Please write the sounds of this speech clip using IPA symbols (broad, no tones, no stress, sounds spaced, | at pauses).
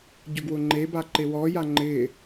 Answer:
ɟ o ɡ w ʊ ŋ͡ǃ e b a ǃ e w ɔ j a ŋ͡ǃ ɪ